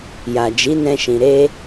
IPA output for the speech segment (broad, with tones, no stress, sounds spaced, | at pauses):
j a˨ d͡ʒ i˨˦ n ɛ̃˧ ʃ ĩ˨ ɾ e˧